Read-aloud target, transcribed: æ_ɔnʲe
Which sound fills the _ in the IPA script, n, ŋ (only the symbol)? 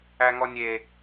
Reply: ŋ